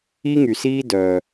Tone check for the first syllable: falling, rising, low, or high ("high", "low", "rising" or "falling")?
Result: high